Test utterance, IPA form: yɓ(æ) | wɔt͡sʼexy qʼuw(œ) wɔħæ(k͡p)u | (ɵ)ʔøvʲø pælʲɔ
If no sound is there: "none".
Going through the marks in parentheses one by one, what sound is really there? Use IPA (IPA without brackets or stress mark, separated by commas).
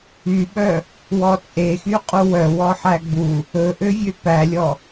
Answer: œ, œ, ɡ͡b, ɵ